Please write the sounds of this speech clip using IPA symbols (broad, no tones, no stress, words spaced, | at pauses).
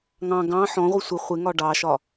ŋɑ̃ ɡɑ̃ ħɔ̃ʁʷi sʷɪ χʷɪŋɒ ɖɑʃɒ